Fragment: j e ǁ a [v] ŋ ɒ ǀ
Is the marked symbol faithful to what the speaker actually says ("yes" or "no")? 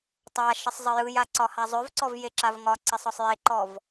yes